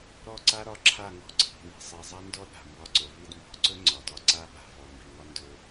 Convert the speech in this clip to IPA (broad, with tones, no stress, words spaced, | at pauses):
ɾɔ˦˨ǀa˦ɾɒ˧ǁʰa˦˨ ŋɔ̤˦ǀʰi̤˨ni̤˨sˤi˨ zˤa˦ndɔ˦ɗa̤˨ mbɒ˧ǀɵ˨ vi˧dmbɔ̤˨˦ǀɵ˦ ŋ͡ǀɒ˨dɒ˧ǀa˦ɓa̤˨ vɔ˨mbi˨ŋɒ˦ ndɵ˦